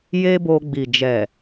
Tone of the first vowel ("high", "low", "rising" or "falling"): high